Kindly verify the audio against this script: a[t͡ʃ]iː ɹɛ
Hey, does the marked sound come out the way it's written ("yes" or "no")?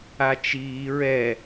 yes